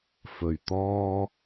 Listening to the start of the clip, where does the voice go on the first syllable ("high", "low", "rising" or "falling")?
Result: low